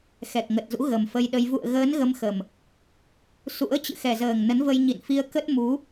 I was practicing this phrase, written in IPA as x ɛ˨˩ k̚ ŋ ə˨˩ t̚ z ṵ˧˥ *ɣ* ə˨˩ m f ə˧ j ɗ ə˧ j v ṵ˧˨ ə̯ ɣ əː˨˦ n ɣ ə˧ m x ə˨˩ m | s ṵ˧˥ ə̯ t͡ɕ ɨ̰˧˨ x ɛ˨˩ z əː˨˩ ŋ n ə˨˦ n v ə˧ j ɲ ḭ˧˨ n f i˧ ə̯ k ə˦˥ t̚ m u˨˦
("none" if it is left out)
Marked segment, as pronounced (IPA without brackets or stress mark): ɣ